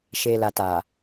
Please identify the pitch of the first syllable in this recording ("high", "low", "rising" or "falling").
low